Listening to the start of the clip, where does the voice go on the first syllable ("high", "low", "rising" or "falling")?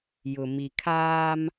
low